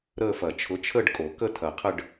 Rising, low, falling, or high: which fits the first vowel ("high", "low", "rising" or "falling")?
falling